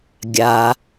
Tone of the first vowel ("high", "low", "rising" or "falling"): low